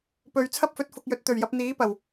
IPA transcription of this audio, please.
p ɵ˨ ɥ t͡sʰ ɐ˥ p̚ f ɵ˨˥ t̚ f ʊ˨ k̚ j ɵ˨ t̚ t̪ ɵ˨˩ ɥ j ɐ˨ p̚ n̪ iː˨˥ p ɐ˨˩ w

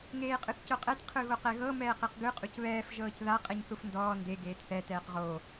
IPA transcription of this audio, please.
ŋ eː qʼ ɯ θ c o qʼ ɛ t qʰ ɯ ɣ o q ɛ ɣ ɤ m ɛː q e q ɡ ɯ qʼ u c β ɛː f ʒ ɤː c ð a qʼ ɛ ɲ θ u f n d ɔː n d e ɡ eː t θ ɛ t ɛː q ʁ o

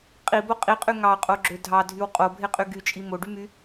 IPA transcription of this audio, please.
qʼ i b o qʼ i qʼ y ŋ ɑ qʼ o ɡ͡ǁ ø dʱ ɑ dʱ y w qʼ o bʱ e qʼ y ɡ y t͡ʃʼ i m o ɖ y m y

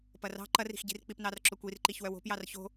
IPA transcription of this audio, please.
p ɐ r ɑ̤ ǃ ɐ r i̤ x ɟ i̤ r k͡p i p n ɑ r ǁ o kʷ i r ǃ i ç w œ w o̤ p j ɑ r ç o̤

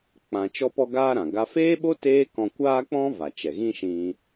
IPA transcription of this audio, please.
k͡p ã˧ t͡ʃ ɔ˦ p ɔ˦ ɡ aː˦ ɾ ã˨ ɡ a˧ f eː˦ ɓ o˦ t eː˦ k ɔ̃˧ kʷ aː˦ k͡p ɔ̃˦ v a˨ t͡ʃ ɛ˨ ɣ ĩ˦ ʃ ĩ˧

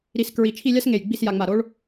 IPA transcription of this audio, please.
ɾ i˧ s k ɹ i˧˩ t͡ʃʰ i˥˧ lʲ a˥ s ŋ e˧˩ j ɡ͡b i˥˧ s j a˧ ŋ͡m a˧˩ ɾ o˥ ɭ

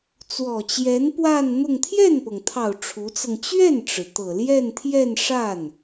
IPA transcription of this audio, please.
t͡s w ɔ˨˩ t͡ɕ j ɛ˧˥ n p w a˥˧ n n̪ ʊ˥˧ ŋ t̪ʰ j ɛ˥˩ n p ɤ˩ ŋ t̪ʰ ɑ˨˩ ʊ̯ ʈ͡ʂʰ u˧˥ t͡s ɤ˧ ŋ t͡ɕ ɥ ɛ˥˩ n ʈ͡ʂ ɻ̩˩ t̪ ɤ˨˩ l j ɛ˥˧ n t̪ʰ j ɛ˥˧ n ʂ a˥˩ n

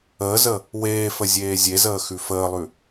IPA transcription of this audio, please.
əː z ə | w eː f ə zʲ eː zʲ e z əː x ʉ f əː lˠ ʉ

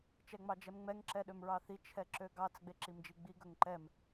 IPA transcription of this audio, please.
t͡ʃ ɛ ŋ͡m ɑ d͡ʒ ɛ m ŋ͡m ɛ ŋ ǁ ɛ ɗ ø m ɹ ɑ θ i t͡ʃʰ ɛ ǁ ø ɡ ɑ t͡s ɡ͡b e ǁ i m d͡ʒ i ɡ͡b i ɡ ɵ ŋ ǃ ɛ m

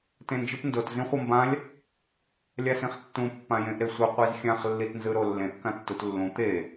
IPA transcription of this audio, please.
t ẽ n d͡ʒ ɯ p n d o t z ĩ χʷ ʌ m b ã lʲ | lʲ a s ĩ χ tː ũ pː ã j ẽ ʔ ɾ e sʷ ɯ qʷ i z xʲ ã χ lː i t n z ɯ ɾ o lː ẽ ʔ k ã tː u t lː ũ t̪ e

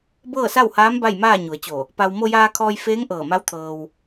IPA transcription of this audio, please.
b ɤː˥˨ s a˥˨ w h aː˧˥ m b a˥˨ j m aː˥˨ ɲ u˩˧ ə̯ t͡ɕ o˧˩ | p a˧ w m o˧ j aː˧ kʰ ɔː˧ j f eː˧˥ ŋ ʔ ɤː˧˩ m a˧˥ w t̪ʰ ɤː˧ w

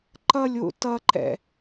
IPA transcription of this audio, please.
ǃ ʌ lʲ w ṵ t ʌ ǃ ɛ̰

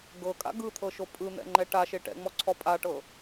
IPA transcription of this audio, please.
ɡ ɤ kʼ a̰ ɡ ɯ t̪ʰ ɤ ʃ o pʼ ɯ n̪ ɛ̰ ŋ͡ǃ ɛ ʈ a ʃ e ʈ ɛ̰ ŋ͡m ɔ ǀʰ ɔ pʼ a ʈ ɤ

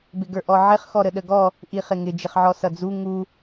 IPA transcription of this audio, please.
b ɪ ɡ ə˞ ʔ ɔ ʕ ɪ χ x ɔ ɾ ə ɗ ə ɡ ɔ | ʔ i χ ɪ ŋ ɪ d͡ʒ ɪ χ ʕ ɔ s ʌ d͡z u ŋ u

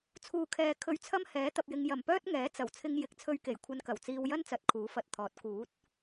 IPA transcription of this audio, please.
t͡sʰ uː˨ kʰ ɛː˨ kʰ ɵ˧ ɥ t͡sʰ ɐ˥ m h ɛː˨˥ t̪ ɐ˧ p̚ j ɪ˧ ŋ j ɐ˨˩ m p œː˥ t̚ ŋ ɛː˨˥ t͡s ɐ˨˩ w t͡sʰ ɪ˧ ŋ j ɪ˨˥ k̚ t͡sʰ ɵ˧ ɥ k e˨˩ j kʷʰ ɐ˧ n k ɐ˨˩ w t͡s iː˧ w j ɐ˥ n t͡s ɐ˨˥ t̚ kʰ uː˨˥ f ɐ˨˥ t̚ t̪ʰ ɔː˨˥ t̚ k uː˨˥ t̚

